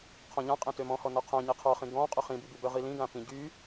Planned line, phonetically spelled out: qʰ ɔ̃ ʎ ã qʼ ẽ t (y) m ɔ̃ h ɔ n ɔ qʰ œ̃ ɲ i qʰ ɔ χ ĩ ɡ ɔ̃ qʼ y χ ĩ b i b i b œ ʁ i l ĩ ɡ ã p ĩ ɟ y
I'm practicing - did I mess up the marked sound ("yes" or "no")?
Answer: yes